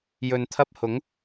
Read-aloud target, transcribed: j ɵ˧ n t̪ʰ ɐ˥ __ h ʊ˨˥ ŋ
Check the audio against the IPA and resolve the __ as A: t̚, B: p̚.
B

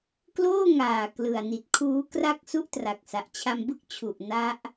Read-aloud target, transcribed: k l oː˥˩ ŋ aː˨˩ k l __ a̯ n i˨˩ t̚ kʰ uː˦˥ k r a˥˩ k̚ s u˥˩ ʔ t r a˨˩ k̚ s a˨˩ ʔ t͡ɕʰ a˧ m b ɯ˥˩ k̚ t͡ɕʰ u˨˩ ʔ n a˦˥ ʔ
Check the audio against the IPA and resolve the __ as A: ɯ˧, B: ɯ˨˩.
B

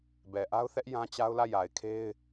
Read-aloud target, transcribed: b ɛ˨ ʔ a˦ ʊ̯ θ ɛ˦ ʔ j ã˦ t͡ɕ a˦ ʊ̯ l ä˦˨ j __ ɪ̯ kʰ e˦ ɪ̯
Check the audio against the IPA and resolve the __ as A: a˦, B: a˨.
B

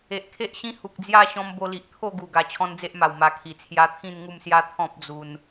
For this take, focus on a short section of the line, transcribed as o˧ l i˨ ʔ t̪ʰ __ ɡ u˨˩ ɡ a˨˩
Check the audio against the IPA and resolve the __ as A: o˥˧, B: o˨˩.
A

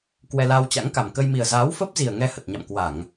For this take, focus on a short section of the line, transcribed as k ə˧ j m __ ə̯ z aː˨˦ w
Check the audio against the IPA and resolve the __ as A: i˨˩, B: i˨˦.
A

